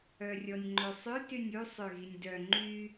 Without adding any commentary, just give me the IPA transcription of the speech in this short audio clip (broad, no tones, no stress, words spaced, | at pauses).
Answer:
œrʲɔnʲŋ͡ǃøsˤʏ tynʲu sˤøɣinʲdœ ŋ͡ǃy